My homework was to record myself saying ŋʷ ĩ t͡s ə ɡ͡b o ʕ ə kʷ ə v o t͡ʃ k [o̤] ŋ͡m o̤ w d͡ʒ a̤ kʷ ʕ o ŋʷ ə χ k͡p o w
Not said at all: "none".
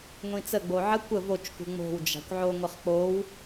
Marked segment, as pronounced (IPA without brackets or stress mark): ṳ